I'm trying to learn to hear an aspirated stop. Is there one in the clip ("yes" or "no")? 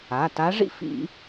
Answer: no